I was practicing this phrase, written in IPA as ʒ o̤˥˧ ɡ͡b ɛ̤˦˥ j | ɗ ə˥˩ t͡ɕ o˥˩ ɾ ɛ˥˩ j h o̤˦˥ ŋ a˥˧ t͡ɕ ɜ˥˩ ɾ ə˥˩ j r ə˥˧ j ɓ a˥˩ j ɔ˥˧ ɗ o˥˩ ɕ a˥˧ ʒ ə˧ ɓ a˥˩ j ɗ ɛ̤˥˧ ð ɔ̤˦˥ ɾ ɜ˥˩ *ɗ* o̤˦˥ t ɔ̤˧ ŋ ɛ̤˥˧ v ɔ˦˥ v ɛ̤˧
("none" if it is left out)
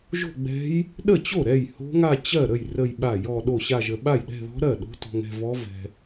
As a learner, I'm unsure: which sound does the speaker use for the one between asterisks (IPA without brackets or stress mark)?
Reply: ɗ